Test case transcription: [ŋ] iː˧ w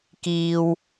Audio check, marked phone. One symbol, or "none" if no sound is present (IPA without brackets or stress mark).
k